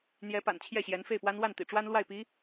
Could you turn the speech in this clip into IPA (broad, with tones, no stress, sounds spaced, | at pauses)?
n̪ j ɛ˧˥ p a̰˨˩ n t͡ɕʰ j ɛ˥˩ ɕ j ɛ˧˥ n f e˥˩ ɪ̯ p w a˥ n w a˥˩ n t̪ ḭ˨˩ ʈ͡ʂ w a˥ n l w a˥˩ ɪ̯ p i˧˥